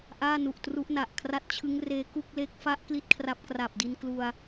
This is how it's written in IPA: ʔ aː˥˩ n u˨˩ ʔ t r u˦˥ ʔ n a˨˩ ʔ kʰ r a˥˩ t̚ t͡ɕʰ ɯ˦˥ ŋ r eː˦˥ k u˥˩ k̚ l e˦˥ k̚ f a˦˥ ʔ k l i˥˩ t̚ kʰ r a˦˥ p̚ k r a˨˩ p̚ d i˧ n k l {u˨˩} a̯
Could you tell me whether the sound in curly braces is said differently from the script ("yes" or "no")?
yes